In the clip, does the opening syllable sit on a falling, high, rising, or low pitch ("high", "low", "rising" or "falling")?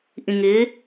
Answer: low